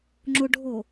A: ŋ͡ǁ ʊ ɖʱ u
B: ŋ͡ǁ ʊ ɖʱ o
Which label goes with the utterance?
B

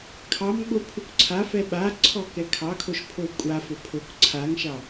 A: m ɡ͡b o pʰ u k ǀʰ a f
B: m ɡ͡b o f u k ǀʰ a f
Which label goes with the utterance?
A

